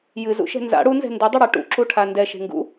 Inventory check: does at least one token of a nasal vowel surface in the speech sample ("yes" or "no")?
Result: no